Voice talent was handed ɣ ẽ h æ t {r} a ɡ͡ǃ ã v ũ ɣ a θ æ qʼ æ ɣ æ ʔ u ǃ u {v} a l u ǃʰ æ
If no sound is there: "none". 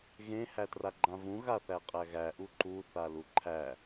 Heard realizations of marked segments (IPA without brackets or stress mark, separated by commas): r, θ